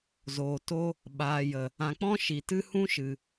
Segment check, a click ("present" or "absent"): absent